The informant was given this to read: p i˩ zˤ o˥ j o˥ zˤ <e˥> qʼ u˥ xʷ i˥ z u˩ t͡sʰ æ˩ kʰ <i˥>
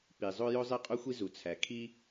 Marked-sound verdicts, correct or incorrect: correct, correct

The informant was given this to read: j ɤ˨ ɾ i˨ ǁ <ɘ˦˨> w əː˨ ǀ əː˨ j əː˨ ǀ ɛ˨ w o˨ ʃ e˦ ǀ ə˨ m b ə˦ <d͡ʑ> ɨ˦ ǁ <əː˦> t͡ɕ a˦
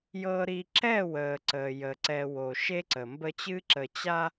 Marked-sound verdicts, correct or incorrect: incorrect, incorrect, incorrect

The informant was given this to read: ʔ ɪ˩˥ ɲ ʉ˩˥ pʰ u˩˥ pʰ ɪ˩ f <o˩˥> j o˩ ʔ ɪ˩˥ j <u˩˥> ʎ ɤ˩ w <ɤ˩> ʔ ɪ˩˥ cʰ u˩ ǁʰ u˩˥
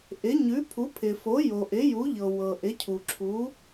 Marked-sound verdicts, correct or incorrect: correct, correct, correct

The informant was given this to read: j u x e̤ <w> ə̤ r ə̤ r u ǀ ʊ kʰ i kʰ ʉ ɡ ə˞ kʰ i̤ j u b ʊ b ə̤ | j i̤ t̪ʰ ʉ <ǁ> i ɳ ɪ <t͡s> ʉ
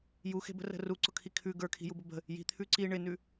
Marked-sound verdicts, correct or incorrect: incorrect, incorrect, incorrect

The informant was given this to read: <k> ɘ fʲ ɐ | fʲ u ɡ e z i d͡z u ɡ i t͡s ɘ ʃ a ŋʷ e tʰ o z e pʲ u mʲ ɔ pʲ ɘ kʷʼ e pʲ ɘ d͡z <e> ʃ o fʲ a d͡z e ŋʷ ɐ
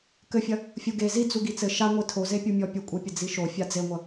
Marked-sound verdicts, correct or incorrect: correct, incorrect

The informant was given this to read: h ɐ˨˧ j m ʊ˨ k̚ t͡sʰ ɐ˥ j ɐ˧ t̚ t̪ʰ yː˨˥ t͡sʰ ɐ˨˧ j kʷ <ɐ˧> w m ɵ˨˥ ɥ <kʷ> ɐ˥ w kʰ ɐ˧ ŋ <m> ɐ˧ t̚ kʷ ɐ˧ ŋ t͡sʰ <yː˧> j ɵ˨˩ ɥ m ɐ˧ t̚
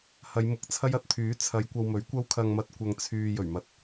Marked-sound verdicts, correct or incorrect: correct, correct, correct, correct

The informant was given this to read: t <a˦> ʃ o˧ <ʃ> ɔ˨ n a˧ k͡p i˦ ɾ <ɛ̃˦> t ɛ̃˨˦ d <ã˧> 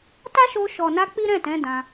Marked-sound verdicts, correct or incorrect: correct, correct, incorrect, correct

